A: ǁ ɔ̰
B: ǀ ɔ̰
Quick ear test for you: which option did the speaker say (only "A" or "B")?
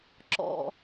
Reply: A